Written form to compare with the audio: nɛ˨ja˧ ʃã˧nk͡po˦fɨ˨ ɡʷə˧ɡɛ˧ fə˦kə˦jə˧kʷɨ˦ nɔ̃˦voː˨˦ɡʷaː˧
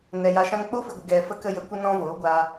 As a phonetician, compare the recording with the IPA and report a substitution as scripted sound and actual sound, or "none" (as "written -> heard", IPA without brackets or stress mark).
none